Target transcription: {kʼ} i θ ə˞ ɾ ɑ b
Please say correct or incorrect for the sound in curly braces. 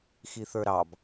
incorrect